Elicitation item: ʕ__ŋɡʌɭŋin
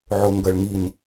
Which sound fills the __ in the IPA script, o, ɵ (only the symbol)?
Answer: o